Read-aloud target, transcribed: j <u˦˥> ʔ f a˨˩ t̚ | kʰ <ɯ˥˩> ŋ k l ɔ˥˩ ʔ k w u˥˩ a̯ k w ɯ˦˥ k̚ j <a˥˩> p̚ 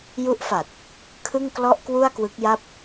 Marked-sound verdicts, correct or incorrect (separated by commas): correct, correct, correct